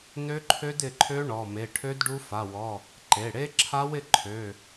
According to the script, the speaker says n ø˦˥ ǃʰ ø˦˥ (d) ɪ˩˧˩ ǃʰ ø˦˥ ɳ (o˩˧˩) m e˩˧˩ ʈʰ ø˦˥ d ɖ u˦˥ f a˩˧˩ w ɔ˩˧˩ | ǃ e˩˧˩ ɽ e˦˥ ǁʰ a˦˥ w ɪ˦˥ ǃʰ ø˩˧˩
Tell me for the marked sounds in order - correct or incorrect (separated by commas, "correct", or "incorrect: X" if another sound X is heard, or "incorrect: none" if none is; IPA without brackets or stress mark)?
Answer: correct, incorrect: ɔ˩˧˩